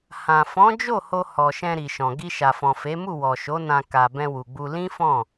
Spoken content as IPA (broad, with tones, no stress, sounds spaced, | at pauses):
h ã˨ f ɔ̃˨˦ d͡ʒ o˦˨ h o˧ h ɔ˨ ʃ ɛ̃˧ ɾ i˨ ʃ ɔ̃˨ ɡ i˧ ʃ a˨ f ɔ̃˨ f e˨˦ m u˦˨ w ɔ˨ ʃ o˨˦ n ã˧ k a˨ b ɛ̃˧ w u˨ ɡ͡b u˧ l ĩ˦ f ɔ̃˦˨